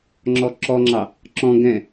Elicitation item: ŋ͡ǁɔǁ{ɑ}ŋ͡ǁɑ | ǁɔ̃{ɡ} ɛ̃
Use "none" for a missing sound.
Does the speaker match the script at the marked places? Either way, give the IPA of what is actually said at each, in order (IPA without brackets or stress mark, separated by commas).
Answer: ɔ, ɡ